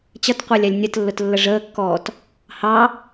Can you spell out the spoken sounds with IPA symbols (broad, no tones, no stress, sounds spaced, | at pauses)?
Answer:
t͡ɕ ʌ t qʷ əː lʲ æ lʲ nʲ ə t lː ʊ t lː ə ʐ əː kː ɔː t | h ɑ